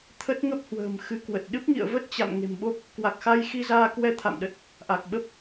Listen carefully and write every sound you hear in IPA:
t̪ʰ ə˦˥ t̚ ŋ ə˦˥ p̚ h w ə̤ː˨˩ m x ɨ˧ k w ə˨˩ t̚ ɗ ɨ˦˥ p̚ ŋ ḭ˧˨ ə̯ v ə˦˥ t̚ t͡ɕ a̰˧˨ m ŋ e̤˨˩ m ɓ o˦˥ p̚ | k w a˨˩ k̚ x a˧ j x i˧ z aː˧ k w ɛ˧ t̪ʰ a̰˧˨ m ɗ ə˨˩ t̚ | ʔ a˨˩ k̚ ɓ ə˦˥ p̚

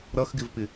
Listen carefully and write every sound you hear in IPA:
ɾ ʌ x ɡ ɪ v p ɪ

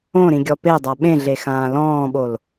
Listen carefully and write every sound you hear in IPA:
õ ɾ ĩ ɡʲ ɔ p e dˤ a ɓ ẽ ɮ e x ãː l ɔ̃ː ɓ o l

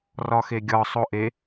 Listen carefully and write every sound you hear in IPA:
r ɒ x e ɡʲ ɒ sˤ o ʔ e

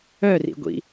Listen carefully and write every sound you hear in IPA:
œ r ḭ ɡʷ ḭ

